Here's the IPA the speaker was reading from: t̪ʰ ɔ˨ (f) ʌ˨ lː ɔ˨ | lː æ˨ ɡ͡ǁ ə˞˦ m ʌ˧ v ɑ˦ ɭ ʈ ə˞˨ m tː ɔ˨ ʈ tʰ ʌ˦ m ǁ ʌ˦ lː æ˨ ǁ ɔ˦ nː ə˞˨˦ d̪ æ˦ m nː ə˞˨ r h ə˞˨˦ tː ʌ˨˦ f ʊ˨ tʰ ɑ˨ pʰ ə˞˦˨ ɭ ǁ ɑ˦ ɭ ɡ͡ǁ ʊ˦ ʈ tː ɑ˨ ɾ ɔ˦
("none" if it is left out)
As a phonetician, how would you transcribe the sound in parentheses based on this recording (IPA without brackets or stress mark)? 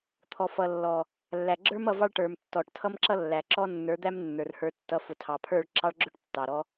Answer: f